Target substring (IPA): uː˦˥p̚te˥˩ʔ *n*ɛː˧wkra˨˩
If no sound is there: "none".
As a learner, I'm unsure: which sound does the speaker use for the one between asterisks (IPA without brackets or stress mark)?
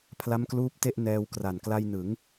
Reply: n